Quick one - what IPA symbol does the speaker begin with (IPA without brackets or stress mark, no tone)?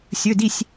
sʲ